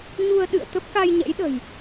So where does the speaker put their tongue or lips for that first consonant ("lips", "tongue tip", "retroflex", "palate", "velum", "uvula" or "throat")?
palate